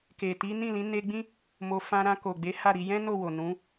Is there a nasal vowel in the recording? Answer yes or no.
yes